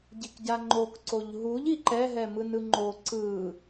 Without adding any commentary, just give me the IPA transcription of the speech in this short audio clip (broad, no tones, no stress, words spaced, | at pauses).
ɟikɟaŋ͡ǃok ǀoʎɦuʎ iǃɛ ɦɛmɯnɯŋ͡ǃo ǀɯ